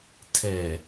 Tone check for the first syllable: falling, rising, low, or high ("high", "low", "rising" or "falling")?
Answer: low